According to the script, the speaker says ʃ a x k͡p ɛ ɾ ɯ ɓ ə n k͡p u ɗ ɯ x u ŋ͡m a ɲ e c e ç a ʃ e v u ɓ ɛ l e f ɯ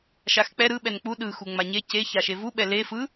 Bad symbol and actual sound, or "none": ə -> ɛ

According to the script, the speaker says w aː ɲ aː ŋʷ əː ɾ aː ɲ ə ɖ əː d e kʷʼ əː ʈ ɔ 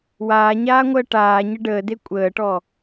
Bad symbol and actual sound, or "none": ɾ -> ʈ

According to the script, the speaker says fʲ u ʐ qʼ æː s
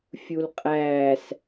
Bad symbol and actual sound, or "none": ʐ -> l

